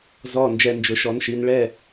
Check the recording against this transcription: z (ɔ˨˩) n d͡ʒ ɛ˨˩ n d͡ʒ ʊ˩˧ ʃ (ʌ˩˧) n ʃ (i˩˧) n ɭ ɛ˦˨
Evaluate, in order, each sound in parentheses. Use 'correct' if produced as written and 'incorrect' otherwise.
correct, incorrect, correct

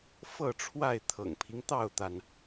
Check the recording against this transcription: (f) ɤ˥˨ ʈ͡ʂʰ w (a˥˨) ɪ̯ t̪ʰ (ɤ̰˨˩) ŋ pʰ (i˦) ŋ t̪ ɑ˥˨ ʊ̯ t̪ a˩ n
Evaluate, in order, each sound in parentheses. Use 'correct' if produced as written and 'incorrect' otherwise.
correct, correct, correct, correct

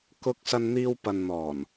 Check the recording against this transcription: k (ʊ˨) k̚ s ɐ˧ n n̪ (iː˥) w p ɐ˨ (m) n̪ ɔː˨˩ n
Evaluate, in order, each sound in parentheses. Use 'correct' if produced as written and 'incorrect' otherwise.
incorrect, incorrect, incorrect

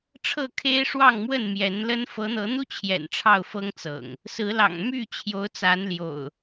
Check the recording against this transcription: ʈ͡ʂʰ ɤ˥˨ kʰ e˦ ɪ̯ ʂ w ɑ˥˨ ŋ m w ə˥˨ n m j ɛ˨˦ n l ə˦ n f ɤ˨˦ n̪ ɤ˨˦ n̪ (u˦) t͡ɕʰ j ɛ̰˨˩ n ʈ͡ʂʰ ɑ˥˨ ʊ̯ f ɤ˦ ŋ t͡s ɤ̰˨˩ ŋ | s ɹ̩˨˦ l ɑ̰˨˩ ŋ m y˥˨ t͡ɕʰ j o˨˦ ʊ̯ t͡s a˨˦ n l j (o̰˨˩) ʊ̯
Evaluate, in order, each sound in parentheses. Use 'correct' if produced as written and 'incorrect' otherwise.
correct, correct

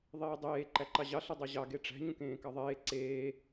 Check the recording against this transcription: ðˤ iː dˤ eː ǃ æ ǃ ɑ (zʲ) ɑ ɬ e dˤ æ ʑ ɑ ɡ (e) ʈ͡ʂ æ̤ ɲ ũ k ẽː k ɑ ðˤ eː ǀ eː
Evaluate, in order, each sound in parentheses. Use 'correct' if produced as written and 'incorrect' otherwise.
incorrect, correct

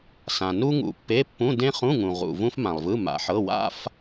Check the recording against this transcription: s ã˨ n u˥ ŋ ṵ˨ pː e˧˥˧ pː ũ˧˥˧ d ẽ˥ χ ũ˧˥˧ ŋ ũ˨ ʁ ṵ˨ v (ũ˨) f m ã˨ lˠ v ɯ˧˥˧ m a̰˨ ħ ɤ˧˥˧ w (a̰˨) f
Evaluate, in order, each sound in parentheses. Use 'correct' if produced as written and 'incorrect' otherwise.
incorrect, incorrect

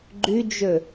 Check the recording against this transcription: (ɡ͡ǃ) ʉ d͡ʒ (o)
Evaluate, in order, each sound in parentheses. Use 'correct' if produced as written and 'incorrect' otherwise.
correct, incorrect

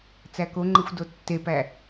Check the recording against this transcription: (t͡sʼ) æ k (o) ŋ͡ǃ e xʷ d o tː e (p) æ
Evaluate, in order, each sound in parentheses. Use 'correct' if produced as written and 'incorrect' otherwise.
incorrect, correct, correct

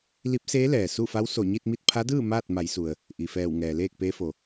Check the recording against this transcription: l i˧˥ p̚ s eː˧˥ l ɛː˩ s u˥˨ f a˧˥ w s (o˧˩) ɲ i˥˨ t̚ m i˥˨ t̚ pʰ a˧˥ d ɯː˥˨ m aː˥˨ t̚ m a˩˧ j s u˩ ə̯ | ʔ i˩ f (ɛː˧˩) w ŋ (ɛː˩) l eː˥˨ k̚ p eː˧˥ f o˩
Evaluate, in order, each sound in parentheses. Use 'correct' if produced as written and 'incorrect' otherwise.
correct, correct, correct

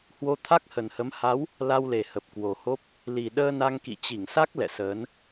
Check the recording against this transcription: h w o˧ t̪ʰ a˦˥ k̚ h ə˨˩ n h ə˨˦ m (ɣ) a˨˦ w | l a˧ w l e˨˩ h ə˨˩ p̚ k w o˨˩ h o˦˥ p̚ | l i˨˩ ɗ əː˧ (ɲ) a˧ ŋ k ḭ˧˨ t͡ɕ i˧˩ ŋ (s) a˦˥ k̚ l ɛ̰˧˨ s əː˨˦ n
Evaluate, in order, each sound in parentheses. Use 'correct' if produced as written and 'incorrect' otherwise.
incorrect, incorrect, correct

